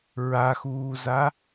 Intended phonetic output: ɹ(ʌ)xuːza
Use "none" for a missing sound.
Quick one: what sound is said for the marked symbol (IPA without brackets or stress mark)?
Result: a